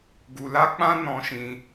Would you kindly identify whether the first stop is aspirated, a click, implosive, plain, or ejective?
plain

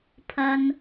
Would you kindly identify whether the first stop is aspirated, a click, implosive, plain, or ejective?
aspirated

